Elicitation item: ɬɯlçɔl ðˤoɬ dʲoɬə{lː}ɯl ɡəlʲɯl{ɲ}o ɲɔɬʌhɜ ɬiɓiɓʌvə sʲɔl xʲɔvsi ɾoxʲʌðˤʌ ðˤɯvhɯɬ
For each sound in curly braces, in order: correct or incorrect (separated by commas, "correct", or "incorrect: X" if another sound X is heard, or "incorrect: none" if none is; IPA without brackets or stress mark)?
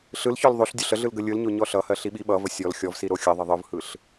incorrect: ɮ, correct